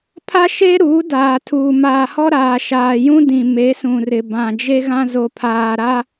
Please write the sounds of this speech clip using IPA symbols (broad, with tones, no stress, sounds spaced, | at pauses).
pʰ a˦ ʃ e˦ ɾ uː˨˦ d aː˨ tʰ uː˨ m aː˨ h ɔ˦ ɾ aː˨ ʃ aː˨ j ũ˦ d ĩ˨ m e˨˦ s ũ˨ r ɪ˨ b ã˨ d͡ʒ e˦ ɣ ã˦ z o˨ pʰ aː˨ ɾ a˦